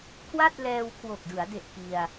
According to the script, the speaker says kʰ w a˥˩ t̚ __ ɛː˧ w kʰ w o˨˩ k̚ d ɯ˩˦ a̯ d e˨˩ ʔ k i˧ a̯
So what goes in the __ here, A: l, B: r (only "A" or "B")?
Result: A